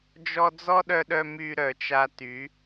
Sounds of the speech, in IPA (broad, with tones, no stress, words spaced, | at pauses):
d͡ʒɔ˦ d͡zɔ˦ɗœ˧ɗœ˧ my˧ ɾœ˨t͡ʃa˧ ty˨˦